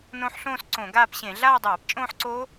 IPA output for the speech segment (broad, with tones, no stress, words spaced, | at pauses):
nõ˦˥ħɬõː˥˧s ǀõ˧˩˧ɡaː˥˧pɕẽ˧˩˧ ɮaː˥˧dˤaː˧˩˧pt͡ʃʼõː˥˧ħǀoː˦˥